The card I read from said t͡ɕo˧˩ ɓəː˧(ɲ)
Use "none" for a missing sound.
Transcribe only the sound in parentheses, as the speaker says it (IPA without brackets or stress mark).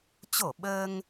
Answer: ŋ